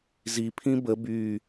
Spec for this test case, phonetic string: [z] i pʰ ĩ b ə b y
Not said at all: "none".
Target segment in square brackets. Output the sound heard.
z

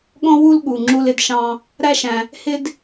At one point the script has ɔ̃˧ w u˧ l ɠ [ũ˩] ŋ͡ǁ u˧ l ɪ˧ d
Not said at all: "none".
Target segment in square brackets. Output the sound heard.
u˩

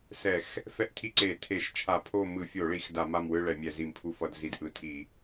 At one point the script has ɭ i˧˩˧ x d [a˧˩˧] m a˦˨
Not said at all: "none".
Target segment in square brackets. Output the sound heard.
a˧˩˧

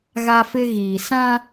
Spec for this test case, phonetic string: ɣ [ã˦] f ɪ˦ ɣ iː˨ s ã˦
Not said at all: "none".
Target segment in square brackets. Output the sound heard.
a˦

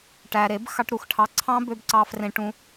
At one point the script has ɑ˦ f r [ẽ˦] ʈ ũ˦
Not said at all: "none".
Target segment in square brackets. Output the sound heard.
ẽ˦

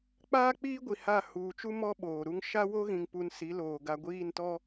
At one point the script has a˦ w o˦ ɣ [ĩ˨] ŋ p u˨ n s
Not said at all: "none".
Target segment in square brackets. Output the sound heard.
ĩ˨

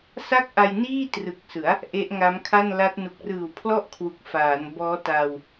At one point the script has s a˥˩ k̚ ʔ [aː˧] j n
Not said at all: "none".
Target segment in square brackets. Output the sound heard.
a˧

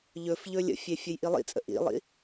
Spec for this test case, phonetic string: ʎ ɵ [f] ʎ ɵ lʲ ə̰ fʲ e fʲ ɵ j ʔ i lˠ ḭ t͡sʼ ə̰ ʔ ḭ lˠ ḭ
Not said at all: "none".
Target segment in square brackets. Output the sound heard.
f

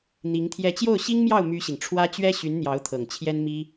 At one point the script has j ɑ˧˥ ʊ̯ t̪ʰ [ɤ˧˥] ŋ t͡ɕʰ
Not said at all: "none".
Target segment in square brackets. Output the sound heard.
ɤ˨˩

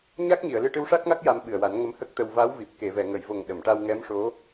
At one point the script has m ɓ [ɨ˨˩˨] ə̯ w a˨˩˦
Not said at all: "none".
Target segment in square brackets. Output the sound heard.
ɨ˨˩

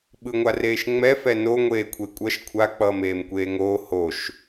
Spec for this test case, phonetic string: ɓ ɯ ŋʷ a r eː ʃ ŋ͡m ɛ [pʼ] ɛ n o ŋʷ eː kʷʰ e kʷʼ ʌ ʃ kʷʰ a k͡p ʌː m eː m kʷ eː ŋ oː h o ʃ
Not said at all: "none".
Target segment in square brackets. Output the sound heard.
f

